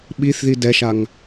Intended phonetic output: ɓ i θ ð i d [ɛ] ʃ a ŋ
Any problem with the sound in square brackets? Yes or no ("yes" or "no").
no